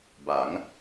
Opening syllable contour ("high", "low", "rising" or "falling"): rising